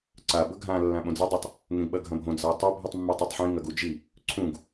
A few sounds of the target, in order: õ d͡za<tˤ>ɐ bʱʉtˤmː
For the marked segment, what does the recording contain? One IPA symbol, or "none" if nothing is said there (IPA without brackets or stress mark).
tˤ